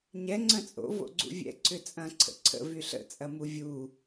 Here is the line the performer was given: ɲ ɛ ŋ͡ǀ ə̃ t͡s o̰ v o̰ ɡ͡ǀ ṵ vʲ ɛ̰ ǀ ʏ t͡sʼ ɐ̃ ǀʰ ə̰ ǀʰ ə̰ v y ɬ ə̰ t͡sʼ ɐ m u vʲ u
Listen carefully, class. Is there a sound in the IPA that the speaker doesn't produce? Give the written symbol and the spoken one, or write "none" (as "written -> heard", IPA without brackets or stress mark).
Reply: t͡s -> t͡sʼ